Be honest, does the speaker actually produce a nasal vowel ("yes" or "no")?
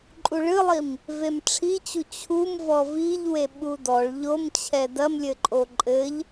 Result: no